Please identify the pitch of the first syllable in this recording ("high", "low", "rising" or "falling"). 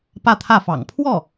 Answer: falling